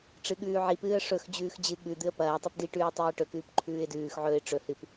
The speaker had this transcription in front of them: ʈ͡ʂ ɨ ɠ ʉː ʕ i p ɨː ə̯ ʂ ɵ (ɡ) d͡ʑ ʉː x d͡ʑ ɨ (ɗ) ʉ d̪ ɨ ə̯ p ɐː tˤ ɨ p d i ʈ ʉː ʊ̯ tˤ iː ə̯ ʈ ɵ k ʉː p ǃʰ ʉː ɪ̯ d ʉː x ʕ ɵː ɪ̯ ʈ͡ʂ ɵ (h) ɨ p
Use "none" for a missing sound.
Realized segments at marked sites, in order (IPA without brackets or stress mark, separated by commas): x, ɠ, h